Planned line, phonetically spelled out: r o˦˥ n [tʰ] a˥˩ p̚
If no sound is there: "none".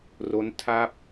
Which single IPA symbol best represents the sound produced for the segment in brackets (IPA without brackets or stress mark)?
tʰ